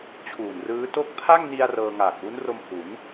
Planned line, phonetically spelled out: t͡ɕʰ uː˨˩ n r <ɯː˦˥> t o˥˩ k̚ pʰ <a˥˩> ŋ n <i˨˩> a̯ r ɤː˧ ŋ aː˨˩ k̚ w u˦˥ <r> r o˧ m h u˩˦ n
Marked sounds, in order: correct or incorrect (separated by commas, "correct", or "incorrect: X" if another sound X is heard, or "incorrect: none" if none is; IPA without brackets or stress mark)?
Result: correct, correct, incorrect: i˧, incorrect: n